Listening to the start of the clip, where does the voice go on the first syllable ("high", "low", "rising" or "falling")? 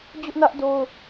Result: high